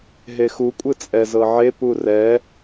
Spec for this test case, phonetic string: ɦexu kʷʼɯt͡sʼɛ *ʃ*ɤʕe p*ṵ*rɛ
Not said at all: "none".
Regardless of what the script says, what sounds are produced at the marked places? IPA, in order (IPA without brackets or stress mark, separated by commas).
z, u